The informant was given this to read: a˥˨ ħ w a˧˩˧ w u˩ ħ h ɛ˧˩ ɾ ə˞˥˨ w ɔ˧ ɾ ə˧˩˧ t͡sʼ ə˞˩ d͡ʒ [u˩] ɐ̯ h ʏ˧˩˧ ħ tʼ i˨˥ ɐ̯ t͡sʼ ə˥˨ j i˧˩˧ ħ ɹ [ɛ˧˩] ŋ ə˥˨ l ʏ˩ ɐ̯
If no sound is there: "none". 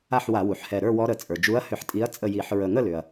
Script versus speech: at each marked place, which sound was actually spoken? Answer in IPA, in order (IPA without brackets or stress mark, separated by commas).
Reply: u˨˥, ə˧˩